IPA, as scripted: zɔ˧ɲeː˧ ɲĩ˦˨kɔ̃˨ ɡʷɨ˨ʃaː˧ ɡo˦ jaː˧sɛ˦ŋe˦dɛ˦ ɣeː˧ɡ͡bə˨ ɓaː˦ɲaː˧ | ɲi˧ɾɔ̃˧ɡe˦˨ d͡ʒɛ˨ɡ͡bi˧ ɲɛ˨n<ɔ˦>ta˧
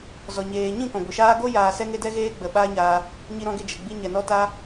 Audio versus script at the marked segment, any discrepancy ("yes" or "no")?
yes